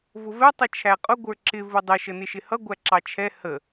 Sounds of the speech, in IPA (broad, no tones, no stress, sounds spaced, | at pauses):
v ʊ v ɛ tˤ ʌ t͡ʃʰ æ qʼ ʊ ɡʷ ə˞ ǁ ɪ v ʊ dˤ ɪ ʃ ə n ɪ ʃ ɪ h ʌ ɡʷ æ ǁ ɑ t͡ʃʰ ɛ h ə